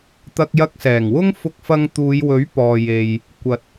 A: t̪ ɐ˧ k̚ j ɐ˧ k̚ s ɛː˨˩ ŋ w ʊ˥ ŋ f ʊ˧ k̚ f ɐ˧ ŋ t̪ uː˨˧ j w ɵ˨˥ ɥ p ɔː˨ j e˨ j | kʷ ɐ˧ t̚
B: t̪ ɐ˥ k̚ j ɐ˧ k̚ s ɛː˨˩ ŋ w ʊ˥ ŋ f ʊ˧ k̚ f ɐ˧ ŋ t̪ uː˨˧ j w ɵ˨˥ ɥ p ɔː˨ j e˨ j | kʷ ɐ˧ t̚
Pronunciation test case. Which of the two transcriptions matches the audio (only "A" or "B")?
A